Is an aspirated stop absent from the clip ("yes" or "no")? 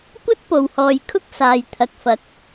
no